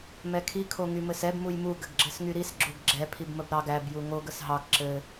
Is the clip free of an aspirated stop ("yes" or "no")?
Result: no